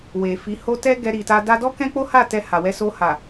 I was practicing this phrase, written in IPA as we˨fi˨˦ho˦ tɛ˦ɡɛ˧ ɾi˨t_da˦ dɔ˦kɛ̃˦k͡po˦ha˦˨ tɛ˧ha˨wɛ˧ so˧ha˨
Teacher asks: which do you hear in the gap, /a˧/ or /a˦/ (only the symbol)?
a˧